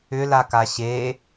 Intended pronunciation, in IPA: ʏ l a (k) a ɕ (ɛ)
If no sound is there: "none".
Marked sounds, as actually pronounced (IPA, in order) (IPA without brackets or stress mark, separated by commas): k, e